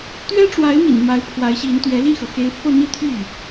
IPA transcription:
t̪ ɥ ɛ˥ ʈ͡ʂ w a˧˥ ɪ̯ m ḭ˨˩ n m a˧˥ ɪ̯ pʰ w a˧˥ ɪ̯ ɕ i˧˥ n t̪ ɥ ɛ˧˥ l i˥˩ x ɤ˩ x e˧˥ ɪ̯ f ɤ˥˧ n̪ i˥˧ t̪ʰ y˥˩

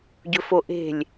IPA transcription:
ɟ ɵ f o ʔ e̤ lʲ

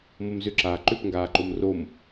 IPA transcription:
m o m z ʏ ǁ aː ǃ ʏ p ŋ ɡ aː ǃ o m r o m

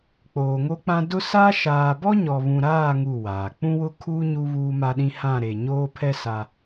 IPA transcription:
k͡p oː˨ ŋ o˦ k͡p ã˦ d ʊ˦ s a˦ ʃ aː˨ b ɔ˦ ɲ ɔ˨ β ũ˨ ɾ aː˦˨ ŋ u˦˨ w aː˨ k͡p ũ˦ w ʊ˦ kʰ uː˦ ɲ u˦ β uː˦ m a˦ ɗ ĩ˦ h ã˦˨ ɾ e˨ ɲ oː˦ pʰ ɛ˦ s a˦

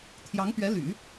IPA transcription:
t̪ʰ j ɑ˧˥ ŋ p ɥ ɛ˧˥ l y̰˨˩˦

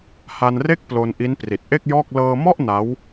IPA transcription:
h a˧ n r e˥˩ k̚ p l o˧ n ʔ i˦˥ n p r i˨˩ t̚ ʔ e˥˩ k̚ j ɔː˥˩ k̚ l ɤː˧ m ɔ˥˩ ʔ n a˦˥ w

